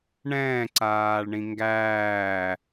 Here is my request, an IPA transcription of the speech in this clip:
ɳ ɛ̃ː ǀ aː ɭ ɳ ĩ ŋ ɡ æː

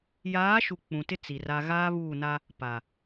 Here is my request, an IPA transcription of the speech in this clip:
j aː˨˦ ʃ u˨ k͡p ũ˨ t ɪ˦ t͡s i˨ r a˦ ɣ aː˦ β uː˦˨ n a˦ | p a˨

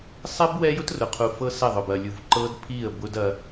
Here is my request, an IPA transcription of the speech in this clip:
sˤ ɛ˦ b w ɛ˦ j ʊ˦ t r ʊ˨ qʰ u˨ f ɤ˦ s ɛ˦˨ ðˤ ʊ˨ b ɐ˨ lʲ u˨ v ǃ ɤ˦ d pʰ i˦˨ ə̯ b ʊ˦ d ɐ˦

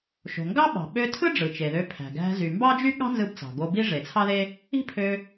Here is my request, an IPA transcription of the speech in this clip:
ʃ o̤˩ ŋ ɡ ɑ˥ ɓ ɑ̤˩ ɓ ø˧ tʰ ɯ˥ ɖ͡ʐ ɯ˩ t͡ʃ e˩ ð ø˧ pʰ æ̤˩ ɡ æ̤˧ z y˩ m b ɑ˥ d͡ʒ y˥ ɠ ɑ̤˥ n z ɯ˧ b t͡s ɑ̤˩ ɡ o˧ b i˥ ʐ e˩ t͡sʰ ɑ˥ ð e˥ | i̤˥ pʰ ø˧

